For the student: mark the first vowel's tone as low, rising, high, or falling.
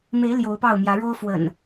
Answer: rising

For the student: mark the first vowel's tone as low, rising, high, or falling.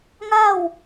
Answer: falling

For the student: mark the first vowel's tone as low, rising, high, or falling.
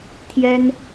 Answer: high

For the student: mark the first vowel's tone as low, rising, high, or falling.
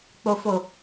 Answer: low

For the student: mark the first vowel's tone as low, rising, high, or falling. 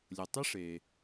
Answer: low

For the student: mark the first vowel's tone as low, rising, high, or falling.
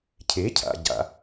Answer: rising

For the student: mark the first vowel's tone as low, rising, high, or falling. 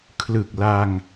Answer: low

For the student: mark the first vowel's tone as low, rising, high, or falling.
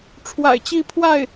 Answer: low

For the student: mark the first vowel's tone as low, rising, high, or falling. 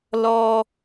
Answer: high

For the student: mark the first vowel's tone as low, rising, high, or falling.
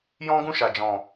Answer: high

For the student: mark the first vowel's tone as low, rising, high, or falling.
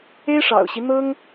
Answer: high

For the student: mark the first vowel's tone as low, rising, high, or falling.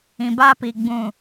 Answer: low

